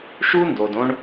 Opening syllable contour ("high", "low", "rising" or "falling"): high